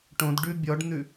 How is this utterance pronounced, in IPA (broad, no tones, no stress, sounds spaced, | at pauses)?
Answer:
ʈ õ d ɖ ʉ bʲ ɔ ɖ n̪ ʉ